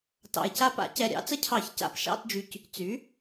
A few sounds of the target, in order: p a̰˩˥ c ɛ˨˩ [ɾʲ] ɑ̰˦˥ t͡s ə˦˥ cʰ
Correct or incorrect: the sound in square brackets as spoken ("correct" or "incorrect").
correct